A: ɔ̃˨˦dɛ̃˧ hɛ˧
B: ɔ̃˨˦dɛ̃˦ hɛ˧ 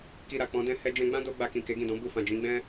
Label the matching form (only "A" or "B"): B